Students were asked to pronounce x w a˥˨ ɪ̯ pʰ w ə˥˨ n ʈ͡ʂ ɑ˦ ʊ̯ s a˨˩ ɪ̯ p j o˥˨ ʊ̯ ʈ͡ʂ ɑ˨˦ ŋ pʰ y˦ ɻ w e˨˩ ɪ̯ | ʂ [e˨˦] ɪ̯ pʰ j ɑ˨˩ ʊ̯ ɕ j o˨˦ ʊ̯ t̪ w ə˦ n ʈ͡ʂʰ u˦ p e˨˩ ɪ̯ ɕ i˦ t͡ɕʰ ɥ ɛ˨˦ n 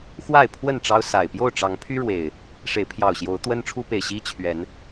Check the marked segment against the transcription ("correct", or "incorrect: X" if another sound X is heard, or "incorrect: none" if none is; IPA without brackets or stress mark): correct